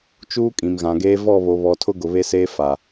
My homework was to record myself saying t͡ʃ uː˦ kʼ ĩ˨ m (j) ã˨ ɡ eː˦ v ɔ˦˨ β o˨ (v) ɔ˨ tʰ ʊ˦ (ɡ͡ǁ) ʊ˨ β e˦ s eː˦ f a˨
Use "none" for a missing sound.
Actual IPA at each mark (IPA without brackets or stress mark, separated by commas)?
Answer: ɣ, β, ɡ